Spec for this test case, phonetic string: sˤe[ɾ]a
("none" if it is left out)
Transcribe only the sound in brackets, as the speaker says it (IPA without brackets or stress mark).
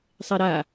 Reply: ɾ